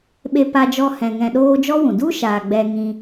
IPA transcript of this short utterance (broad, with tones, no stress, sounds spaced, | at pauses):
ɓ e˧ p a˧ d͡ʒ ɔ˧ h ɛ̃˨ ŋ ɛ̃˧ ɗ oː˦ d͡ʒ ɔ˦ w ũ˨ d u˦ ʃ aː˨ ɡ͡b ɛ˧ ŋ ĩ˧